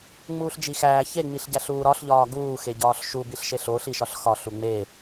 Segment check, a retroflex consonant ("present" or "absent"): absent